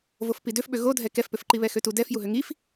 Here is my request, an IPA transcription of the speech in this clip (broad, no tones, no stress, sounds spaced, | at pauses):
v o f p i d ø f ɓ ø ɣ o dʱ ɛ k ɛ f p ø f ǃ i β ɛ x ø t u d ɛ f j u ɦ ø ŋ i f